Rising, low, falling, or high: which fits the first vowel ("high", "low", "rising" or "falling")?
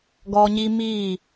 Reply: high